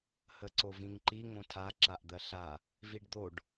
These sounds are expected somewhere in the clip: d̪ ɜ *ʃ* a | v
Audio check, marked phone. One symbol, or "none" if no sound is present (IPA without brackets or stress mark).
ɬ